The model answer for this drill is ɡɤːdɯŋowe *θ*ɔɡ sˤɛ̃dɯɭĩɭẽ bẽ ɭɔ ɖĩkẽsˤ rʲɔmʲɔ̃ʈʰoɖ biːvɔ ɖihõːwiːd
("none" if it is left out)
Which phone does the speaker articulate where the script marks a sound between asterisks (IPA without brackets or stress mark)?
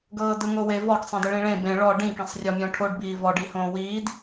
v